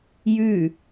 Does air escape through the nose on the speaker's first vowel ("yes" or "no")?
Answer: no